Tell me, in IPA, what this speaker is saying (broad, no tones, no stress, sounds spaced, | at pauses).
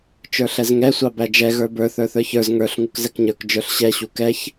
t͡ʃ ə˞ ɬ ɛ z ŋ ɛ sʷ ɑ b æ d͡ʒ ɛ ɣ ə˞ b ə˞ θ ə˞ θ ə˞ ç ə˞ z ŋ ə˞ ɬ ŋ u k z ɛ k ɲ ə˞ k d͡ʒ ə˞ ɬ ɕ ɛ ɕ u k ɛ ç